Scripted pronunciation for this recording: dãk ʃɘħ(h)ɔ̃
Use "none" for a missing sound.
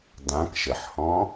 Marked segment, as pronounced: h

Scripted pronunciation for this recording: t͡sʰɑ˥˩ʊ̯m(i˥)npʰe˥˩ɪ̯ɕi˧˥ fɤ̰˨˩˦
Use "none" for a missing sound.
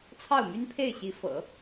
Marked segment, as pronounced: y˥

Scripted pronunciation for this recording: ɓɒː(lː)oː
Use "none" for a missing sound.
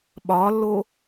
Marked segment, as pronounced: lː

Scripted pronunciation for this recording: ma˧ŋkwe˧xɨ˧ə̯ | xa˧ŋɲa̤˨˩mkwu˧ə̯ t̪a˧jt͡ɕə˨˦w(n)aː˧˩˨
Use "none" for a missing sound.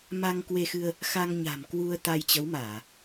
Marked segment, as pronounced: m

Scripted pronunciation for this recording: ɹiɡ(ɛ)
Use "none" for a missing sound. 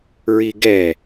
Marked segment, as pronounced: ɛ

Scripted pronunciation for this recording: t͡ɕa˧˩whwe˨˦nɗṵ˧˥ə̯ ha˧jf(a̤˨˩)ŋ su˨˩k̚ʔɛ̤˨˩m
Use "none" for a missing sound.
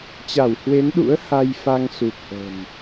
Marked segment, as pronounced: a˧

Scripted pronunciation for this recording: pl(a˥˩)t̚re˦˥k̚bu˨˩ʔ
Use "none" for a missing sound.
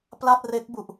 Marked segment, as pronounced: a˥˩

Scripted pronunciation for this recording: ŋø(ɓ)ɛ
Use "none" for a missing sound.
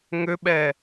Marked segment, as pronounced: ɓ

